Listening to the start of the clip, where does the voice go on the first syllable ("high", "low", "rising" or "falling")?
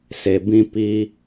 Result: low